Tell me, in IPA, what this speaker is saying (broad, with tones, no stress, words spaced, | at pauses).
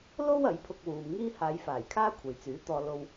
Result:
lo˥w ɐ˨˥jpʰʊ˧k̚wuː˨m ŋiː˥ haː˨˧jfaː˨˩j kʰaː˥kʷʰɐ˨jt͡syː˨˥t̪ɔː˧ lo˧w